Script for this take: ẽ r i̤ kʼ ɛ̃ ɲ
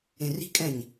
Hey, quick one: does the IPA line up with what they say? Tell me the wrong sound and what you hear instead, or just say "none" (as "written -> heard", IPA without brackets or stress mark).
none